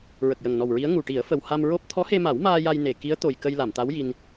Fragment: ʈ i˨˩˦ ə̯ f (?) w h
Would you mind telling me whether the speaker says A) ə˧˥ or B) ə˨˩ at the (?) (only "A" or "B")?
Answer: B